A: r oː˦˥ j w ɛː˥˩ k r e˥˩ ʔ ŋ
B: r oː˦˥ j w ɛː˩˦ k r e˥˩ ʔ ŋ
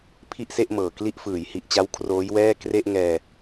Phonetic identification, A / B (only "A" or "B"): A